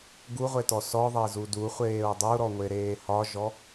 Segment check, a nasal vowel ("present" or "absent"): absent